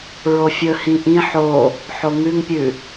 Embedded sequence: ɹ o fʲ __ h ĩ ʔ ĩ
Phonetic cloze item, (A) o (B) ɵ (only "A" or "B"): B